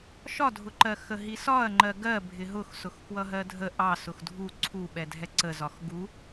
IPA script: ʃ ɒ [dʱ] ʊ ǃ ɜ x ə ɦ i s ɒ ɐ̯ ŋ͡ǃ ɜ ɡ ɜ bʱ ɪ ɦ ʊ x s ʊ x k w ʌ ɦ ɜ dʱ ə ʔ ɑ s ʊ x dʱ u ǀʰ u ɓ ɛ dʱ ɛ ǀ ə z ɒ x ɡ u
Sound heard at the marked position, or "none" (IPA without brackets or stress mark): dʱ